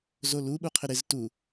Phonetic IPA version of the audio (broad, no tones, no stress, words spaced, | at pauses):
zolu ɓuqʰɪɾɪz tu